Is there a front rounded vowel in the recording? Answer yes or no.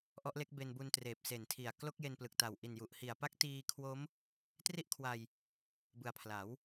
no